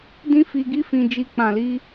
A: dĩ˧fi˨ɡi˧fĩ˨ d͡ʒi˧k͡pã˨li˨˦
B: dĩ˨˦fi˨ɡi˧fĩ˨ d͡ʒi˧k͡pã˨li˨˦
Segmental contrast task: A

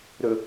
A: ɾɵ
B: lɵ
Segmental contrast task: A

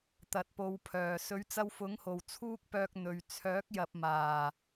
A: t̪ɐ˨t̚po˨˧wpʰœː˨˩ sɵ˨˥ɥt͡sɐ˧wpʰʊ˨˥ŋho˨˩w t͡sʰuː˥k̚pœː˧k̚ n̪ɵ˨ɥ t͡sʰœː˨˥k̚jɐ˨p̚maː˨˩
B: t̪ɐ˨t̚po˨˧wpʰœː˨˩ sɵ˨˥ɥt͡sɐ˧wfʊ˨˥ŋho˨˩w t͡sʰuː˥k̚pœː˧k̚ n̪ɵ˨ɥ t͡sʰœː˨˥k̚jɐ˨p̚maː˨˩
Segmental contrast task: B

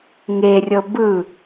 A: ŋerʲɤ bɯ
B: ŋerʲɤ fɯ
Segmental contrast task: A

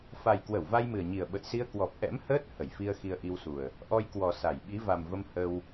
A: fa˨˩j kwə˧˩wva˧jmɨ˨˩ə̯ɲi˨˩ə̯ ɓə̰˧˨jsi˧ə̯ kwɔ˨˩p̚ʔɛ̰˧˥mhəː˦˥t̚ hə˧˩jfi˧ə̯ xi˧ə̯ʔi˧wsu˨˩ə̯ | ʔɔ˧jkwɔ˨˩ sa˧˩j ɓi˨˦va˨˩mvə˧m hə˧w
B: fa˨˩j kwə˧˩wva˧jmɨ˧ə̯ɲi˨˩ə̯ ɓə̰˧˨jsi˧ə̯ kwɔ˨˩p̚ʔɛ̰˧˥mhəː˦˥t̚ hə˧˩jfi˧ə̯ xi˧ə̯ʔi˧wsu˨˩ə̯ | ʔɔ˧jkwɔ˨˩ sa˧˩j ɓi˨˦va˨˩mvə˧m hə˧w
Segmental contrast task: A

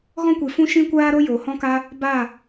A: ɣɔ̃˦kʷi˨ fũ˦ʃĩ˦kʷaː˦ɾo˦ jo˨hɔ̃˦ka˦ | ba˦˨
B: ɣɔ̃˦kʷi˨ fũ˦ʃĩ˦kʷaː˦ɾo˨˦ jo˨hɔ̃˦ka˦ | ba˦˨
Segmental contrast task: A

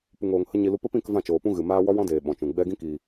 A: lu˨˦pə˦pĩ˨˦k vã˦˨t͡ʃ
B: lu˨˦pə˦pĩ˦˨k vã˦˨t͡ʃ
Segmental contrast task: B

